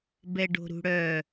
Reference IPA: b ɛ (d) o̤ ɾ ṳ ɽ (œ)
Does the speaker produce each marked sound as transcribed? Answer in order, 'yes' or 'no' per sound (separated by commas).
no, yes